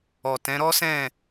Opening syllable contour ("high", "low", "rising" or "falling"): low